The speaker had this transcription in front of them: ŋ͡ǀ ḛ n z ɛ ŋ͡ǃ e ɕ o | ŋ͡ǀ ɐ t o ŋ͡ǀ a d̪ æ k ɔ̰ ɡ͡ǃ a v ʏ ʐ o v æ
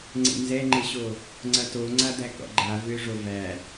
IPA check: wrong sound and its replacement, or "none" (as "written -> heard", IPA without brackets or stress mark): none